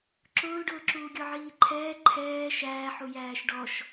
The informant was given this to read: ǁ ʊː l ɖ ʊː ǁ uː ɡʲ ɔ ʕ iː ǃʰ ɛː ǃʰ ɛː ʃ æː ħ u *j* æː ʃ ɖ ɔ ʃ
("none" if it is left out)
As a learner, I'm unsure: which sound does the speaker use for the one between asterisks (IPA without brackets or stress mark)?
j